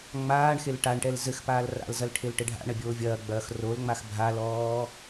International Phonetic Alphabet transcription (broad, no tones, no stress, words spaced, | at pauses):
ŋ͡maːɳxel ʈaɳʈɛl zɘxpaːl ra̰lzɐl ʈʰelʈɘɖʱa̰ɳɐ bʲoːvʲɐːɡ͡bɐːx rolŋ͡max bʱalɔː